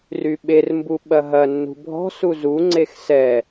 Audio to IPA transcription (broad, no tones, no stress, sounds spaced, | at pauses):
r y ɓ e r m b u ɓ ɐ ɦ ɐ nː ṳ bʱ ɔ̤ s u z u ŋ͡ǀ e x s ɛ